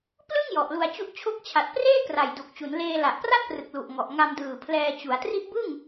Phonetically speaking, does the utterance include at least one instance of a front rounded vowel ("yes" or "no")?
no